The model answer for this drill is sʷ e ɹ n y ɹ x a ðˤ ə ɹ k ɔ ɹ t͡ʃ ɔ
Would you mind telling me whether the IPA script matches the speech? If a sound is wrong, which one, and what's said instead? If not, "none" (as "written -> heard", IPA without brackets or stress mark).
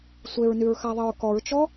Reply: none